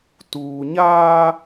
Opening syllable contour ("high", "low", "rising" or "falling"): low